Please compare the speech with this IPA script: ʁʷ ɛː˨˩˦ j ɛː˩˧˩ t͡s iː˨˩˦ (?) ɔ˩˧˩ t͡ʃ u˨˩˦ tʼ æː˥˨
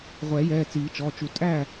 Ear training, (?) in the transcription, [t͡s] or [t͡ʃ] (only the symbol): t͡ʃ